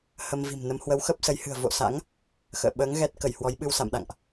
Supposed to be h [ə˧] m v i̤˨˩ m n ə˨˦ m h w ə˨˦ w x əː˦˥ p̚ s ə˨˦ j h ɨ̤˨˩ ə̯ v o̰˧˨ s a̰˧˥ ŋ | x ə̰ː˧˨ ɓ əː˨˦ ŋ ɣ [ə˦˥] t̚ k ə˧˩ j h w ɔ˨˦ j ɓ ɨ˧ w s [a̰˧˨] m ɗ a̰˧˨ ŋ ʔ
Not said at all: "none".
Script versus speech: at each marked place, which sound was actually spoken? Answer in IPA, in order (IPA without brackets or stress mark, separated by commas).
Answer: ə˧, ɛ˦˥, a̰˧˨